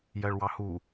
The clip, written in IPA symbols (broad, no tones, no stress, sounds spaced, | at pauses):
j ɜ ɭ w ɑ h u